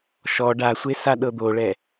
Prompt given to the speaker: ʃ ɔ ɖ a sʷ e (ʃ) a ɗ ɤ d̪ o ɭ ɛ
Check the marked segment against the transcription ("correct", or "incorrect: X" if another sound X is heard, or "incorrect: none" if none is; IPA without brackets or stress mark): incorrect: s